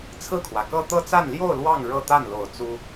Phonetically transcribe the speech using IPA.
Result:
t͡sʰ ɹ̩˥˩ kʰ w ä˩ k ɤ˥˧ t̪ ɤ˥˧ t͡s a˥˧ n l j o˥˧ ʊ̯ l w ɑ˥˧ ŋ ɻ ɤ˥˧ t̪ a˥˩ n l o˨˩ ʊ̯ t͡s u˥

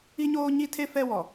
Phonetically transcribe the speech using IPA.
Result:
i˦ ɲ oː˦ ɲ i˦ tʰ e˦ f ɛ˦ w ɔ˨

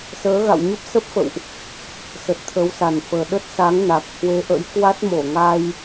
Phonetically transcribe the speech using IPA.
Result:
s əː˨˦ ɣ a̰˧˨ w ɲ ə˦˥ p̚ s ə˦˥ p̚ f ə̰˧˨ w ʔ | s ə˨˩ t̚ t̪ʰ ə˨˦ w s a˨˩ n f əː˨˩ ɗ ə˦˥ t̚ s a˨˦ ŋ n a˨˩ k̚ h w e˨˦ ʔ ə̰˧˥ j k w a˦˥ t̚ m o˧˩ ŋ a˧ j

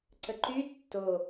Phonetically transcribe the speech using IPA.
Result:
ǀ ə ǃ y tː o

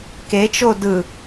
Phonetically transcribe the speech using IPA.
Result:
k e t͡ʃ o d ɯ

